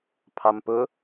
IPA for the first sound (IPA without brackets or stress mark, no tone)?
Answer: pʰ